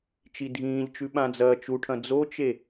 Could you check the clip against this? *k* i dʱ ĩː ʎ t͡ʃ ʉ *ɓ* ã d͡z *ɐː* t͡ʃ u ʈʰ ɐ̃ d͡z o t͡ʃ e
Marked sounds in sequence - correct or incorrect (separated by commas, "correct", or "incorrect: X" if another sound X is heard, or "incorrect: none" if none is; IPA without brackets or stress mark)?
incorrect: t͡ʃ, correct, correct